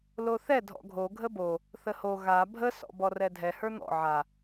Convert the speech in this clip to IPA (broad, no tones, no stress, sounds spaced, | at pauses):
l o θ ɛ dʱ ɔ̰ ɡʱ o ɡʱ ə b o | θ ə h o ɣ a bʱ ə s ɔ̰ b ɔ r ɛ dʱ ɛ h ə˞ n̪ ɔ̰ ʕ a